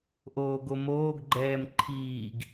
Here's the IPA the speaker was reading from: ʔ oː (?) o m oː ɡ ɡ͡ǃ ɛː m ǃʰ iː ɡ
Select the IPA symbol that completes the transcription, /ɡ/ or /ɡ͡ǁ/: ɡ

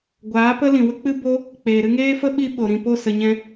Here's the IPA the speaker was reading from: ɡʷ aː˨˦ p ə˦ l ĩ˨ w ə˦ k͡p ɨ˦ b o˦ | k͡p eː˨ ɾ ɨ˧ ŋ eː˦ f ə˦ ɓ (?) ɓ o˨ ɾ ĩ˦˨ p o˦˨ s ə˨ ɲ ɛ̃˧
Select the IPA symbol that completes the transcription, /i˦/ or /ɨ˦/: i˦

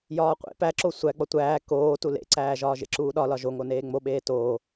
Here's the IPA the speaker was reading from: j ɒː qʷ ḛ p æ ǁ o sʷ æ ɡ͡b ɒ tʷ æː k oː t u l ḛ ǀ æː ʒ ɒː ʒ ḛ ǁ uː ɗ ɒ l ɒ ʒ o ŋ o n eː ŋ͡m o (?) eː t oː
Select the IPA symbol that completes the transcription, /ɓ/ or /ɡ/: ɓ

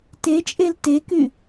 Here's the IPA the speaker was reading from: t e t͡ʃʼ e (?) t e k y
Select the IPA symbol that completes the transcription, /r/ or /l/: l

